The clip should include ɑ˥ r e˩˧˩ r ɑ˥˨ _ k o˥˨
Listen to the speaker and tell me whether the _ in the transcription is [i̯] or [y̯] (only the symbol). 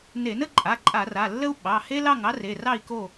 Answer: i̯